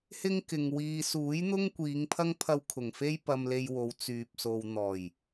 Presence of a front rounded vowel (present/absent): present